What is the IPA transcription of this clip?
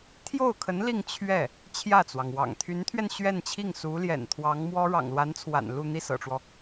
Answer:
t̪ʰ j o˥˩ ʊ̯ kʰ ə˧˥ n l i˥˧ ŋ t͡ɕʰ ɥ ɛ˥˩ | t͡ɕʰ j ä˥˩ t͡s w ɑ˩ ŋ w ɑ̰˨˩ ŋ t̪ʰ y˧˥ n t̪ʰ ɥ ɛ˧ n ɕ ɥ ɛ˥˧ n t͡ɕʰ i˥˩ ŋ s u˧˥ l j ɛ̰˨˩ n t̪ʰ w ɑ˧˥ ŋ m w ɔ˥ ɻ ɑ̰˨˩ ŋ l w a˧˥ n t͡sʰ w a̰˨˩ n l u˥˧ n̪ i˥˩ s ɤ̰˨˩ ʈ͡ʂ w ɔ˦

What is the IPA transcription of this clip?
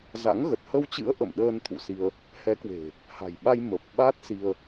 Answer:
z a̰˧˥ ŋ ɣ ə˨˩ t̚ h ə˧ w t͡ɕ ɨ̰˧˥ ə̯ ʔ ə̰˧˨ m ɗ əː˧ n t̪ʰ ṵ˧˨ s i˧ ə̯ | h ɛ˨˦ k w e̤˨˩ | h a̤˨˩ j ɓ a˧ j m ə˨˩ p̚ ɓ a˦˥ t̚ s i˧ ə̯

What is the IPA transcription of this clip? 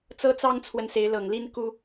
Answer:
t͡s ɤ˦ t͡s ɑ˦ ŋ t͡sʰ w ə˨ n s e˨˦ ɪ̯ l ɤ˨˩ ŋ l i˦ n k u˦

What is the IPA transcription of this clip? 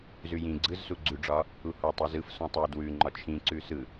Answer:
z ʉ j ĩ ɡ͡ǀ ɯ z s u ɡ͡ǀ ʉ ɖ͡ʐ ɒ | u h ɔ tˤ i z ɯ f s ɔ̃ tˤ ɛ d w ʉ ŋ͡ǃ ɒ t͡ʃʰ ĩ ǀ ʉ s ɯ

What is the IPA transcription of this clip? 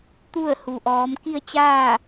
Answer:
t̪ u˥˨ ə̯ h u˩ ʔ ɔː˩˧ m k i˥˨ ə̯ t͡ɕ aː˥˨

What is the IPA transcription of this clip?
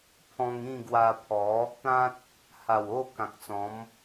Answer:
pʰ ɔ̃˧ ŋ ĩ˥˧ ɡ w a˧ pʰ ɔ˨˦ | t̪ ã˦ t̚ | h a˨˩ w o˥˧ k ã˨ k̚ t͡s ɔ̃˨˦ m

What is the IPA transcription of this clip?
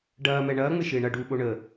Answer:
ɖ ɐː m ɛ ɳ ɐː ŋ͡m ɪ ʃ ɪː ɳ ɐ ɖ uː ɓ o ɳ ə

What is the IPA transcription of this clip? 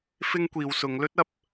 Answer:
f ɪ˥ ŋ kʷ iː˧ w s ʊ˨˧ ŋ l ɵ˥ t̚ ɐ˧ p̚

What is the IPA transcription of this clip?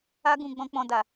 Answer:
a˦ ɡ ũ˧ ɡ͡b ɔ̃˦ k͡p ɔ̃˧ d a˨

